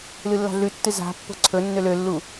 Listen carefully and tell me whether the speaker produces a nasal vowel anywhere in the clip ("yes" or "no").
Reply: no